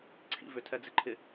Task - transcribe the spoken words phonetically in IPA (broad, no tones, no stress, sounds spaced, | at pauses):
ǀʰ ḭ v ʏ tʰ ɛ d͡z ɪ ǃʰ ɪ